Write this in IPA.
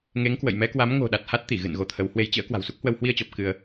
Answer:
ŋ e˨˦ ŋ k w ə̰˧˨ j m ɛ˨˦ k w a˨˦ m ŋ o̤˨˩ ɗ a˨˩ t̚ h a˦˥ t̚ t̪ i˧˩ ɣ ɨ̰˧˨ n ɣ o˨˦ t̪ʰ ə˨˦ w h w e˨˦ j t͡ɕ ə̰ː˧˥ k w a̤˨˩ w s u˦˥ k̚ h w ə˧ w h w i˧ ə̯ t͡ɕ ɔ˨˩ p̚ k ɨ˧ ə̯

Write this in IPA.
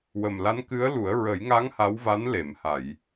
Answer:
w ə˨˩ m l a˧˥ n k ɨ˧˥ ə̯ l u˨˩˦ ə̯ ɹ ə˨˩˦ j ŋ a˧˥ ŋ h a˧˥ w v a˧˥ n l e˨˩˨ m h a˨˩˨ j

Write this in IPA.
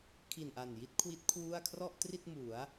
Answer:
kʰ i˨˩ n ʔ a˨˩ n j i˥˩ t̚ kʰ w i˦˥ t̚ kʰ w u˥˩ a̯ kʰ r ɔ˥˩ ʔ t r i˥˩ t̚ m u˩˦ a̯

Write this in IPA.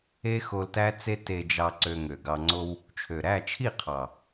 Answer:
e˦ x o˧ l t æ˦ t͡s e˦ t e˧ d͡ʒ ɑ˧ ǀ ø˧ ŋ ø˨ ɡ ɑ˧ ŋ͡ǀ o˧ w | t͡ʃʰ ø˨ ɾ æ˦˨ t͡ʃʰ i˦˨ qʰ ɑ˨

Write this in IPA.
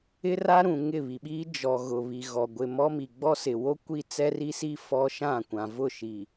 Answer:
ɪ˦ r a˦ ɾ ũ˨ ŋ ɪ˦˨ β i˨ ɓ iː˦ d͡ʒ ɔ˨ ɣ ʊ˨ β i˨ ɣ ɔ˨ ɡʷ ɪ˨ m ɔ˦ m i˨ ɡ͡b ɔ˦ s ɪ˨ w o˦ kʷ i˦ t͡s ɛ˦ r i˦ s i˦ f ɔ˦ ʃ ã˦˨ kʷ ã˨ v ʊ˦˨ ʃ i˨

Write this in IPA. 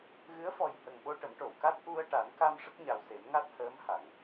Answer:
ɣ ɨ˧˥ ə̯ f ɔ˨˩ j h ə˨˩ ŋ ɓ o˧ ʈ ə˨˩˦ m ʈ o˨˩˨ w k a˦˥ t̚ ʔ u˧ ə̯ ʈ a˨˩˦ n k a˧ m ʂ ə˦˥ k̚ ɲ a˨˩ w s e˨˩˦ m ŋ a˦˥ t̚ h əː˧˥ m h a˨˩˨ ŋ

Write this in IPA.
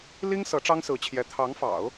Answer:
l i˥ ŋ s ɤ˧˥ ʈ͡ʂ ɑ˥ ŋ s ɹ̩˧˥ t͡ɕʰ j ɛ˧˥ t̪ʰ ɑ˧˥ ŋ f ɑ̰˨˩˦ ʊ̯

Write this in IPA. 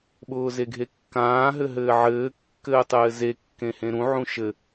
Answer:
ɓ ʊː z e ɡʱ e kː ãː ɦ ɘ ɦ ɘː ʕ ɘː kː ɘː tˤ ɘː z e kː ẽ h ẽ ɾ ũ ʕ ũ ʃ ɘ

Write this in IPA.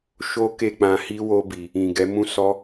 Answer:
ʃ o˦ k e˦˨ k͡p ã˧ h i˦ w o˦ b i˧ | ĩ˨ ɡ ɛ˨˦ m ũ˦ s ɔ˦

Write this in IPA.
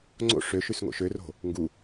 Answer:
ŋ͡ǀ o̰ ʂ ø ʃ ʉ s ŋ o̰ ʃ ø r o̤ | ŋ ɡ u

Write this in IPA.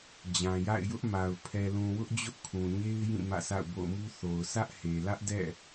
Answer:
d͡ʑ ã˨ j a̰˦˨ ɪ̯ j ʊ˦ ʔ m a˨ ʊ̯ pʰ ɛ˨ l ũ˨ w ʊ˦ ʔ d͡ʑ ʊ˦ ʔ kʰ ũ˨ ɲ e˦ ɪ̯ j ĩ˦˨ m ä̰˦˨ sʰ a̰˦˨ ʊ̯ b o̰˦˨ ʊ̯ m u˦ θ o˨ ʊ̯ s ä˦ ʔ h e˨ l ä˦ ʔ d ɛ̰˦˨

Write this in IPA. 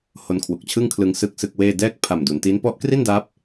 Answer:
h o˧ n kʰ w u˨˩ k̚ t͡ɕʰ ɯ˥˩ ŋ kʰ l ɯ˧ ŋ s ɯ˥˩ k̚ s ɯ˥˩ k̚ w eː˥˩ d ɛː˥˩ k̚ pʰ a˨˩ m d u˩˦ n t i˦˥ n p ɔ˦˥ ʔ k r i˥˩ n d aː˦˥ p̚

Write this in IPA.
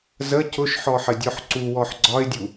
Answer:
z ə c ʊ ʃ ħ ɔ ħ ə dʲ ɔ ħ ǀ u w ɔ ħ ɡ͡ǀ ɒ ɪ̯ dʲ u

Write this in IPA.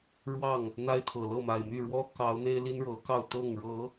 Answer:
ɻ w ɑ˥˨ ŋ | n̪ a˦ ɪ̯ t̪ʰ ɤ˨˩ l ɤ˥˨ m a˨˩ ɪ̯ m y˥˨ ɻ w ɔ˦ k ɑ˨˦ ʊ̯ n̪ e˦ ɪ̯ l i˦ n ɻ ɤ˨˦ k ɑ˥˨ ʊ̯ t̪ ɤ˥˨ ŋ ɻ ɤ˨˦

